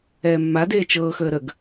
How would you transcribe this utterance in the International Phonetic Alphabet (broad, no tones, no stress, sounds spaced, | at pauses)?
ɛː mː a d eː t͡ʃ ɤː x əː ɾ ə ɡ